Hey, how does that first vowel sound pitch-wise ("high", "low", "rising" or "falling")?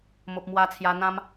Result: low